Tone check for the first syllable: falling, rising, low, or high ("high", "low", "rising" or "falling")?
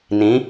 rising